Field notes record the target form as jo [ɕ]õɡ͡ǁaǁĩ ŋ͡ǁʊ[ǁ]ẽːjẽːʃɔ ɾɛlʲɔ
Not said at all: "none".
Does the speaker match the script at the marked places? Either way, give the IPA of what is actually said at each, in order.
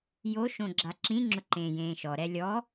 ʃ, ǃ

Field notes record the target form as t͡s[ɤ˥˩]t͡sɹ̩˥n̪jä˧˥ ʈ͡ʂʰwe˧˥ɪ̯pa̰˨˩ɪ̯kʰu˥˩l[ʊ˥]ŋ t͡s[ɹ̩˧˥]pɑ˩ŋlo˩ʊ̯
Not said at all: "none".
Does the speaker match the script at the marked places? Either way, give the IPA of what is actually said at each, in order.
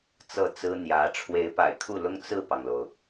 ɤ˥˩, ʊ˥, ɹ̩˥˩

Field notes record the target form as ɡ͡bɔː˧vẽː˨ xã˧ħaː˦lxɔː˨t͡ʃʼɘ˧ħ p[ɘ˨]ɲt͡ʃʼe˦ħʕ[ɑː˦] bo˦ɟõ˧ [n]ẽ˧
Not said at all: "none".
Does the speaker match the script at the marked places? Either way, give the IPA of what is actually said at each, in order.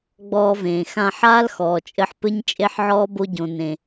ɘ˦, ɔː˦, n

